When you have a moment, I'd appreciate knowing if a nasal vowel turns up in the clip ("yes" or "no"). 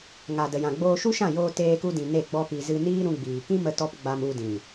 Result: yes